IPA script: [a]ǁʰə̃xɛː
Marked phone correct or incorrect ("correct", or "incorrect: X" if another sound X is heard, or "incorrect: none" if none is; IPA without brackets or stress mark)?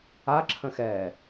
correct